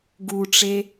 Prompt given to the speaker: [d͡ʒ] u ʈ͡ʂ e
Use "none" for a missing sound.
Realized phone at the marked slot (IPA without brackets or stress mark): ɡ